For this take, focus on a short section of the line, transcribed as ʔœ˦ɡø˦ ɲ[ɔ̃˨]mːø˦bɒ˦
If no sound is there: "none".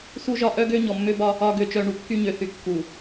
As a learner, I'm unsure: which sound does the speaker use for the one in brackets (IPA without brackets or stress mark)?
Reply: ɔ˨